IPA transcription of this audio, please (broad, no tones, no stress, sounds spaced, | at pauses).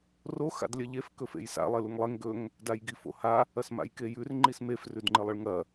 r o x a̰ d lʲ ɐ ʎ e f k ɵ f ḛ j s a̰ lˠ e l u ŋ lˠ e ŋ ɡ ɵ ŋ | d a j ɡ i f o̰ h a | ɐ s m a̰ j k e j ʉ r ŋ͡ǃ i s m e f r ʉ d ŋ͡ǃ ɨ lˠ ɨ ɭ ŋ ɐ